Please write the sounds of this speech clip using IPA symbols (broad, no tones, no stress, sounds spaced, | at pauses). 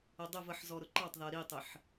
ə dˤ ɪ v ə ħ z ɔ ɾ ʊ ǃ ɑ tˤ ð ɜ ɾ i tˤ ɪ ħ